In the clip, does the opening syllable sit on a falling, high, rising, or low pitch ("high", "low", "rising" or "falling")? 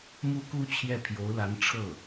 high